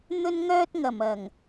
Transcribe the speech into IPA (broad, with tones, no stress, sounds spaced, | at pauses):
n̪ ɵ˥ n ŋ œː˥ t̚ ŋ ɐ˨˩ m ɐ˨˩ ŋ